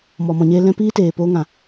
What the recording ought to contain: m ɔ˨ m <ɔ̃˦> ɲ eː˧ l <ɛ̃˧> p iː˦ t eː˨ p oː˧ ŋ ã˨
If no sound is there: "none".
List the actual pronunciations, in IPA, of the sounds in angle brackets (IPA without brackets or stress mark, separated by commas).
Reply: ɔ̃˨, ɛ̃˧